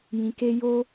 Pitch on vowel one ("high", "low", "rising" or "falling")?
low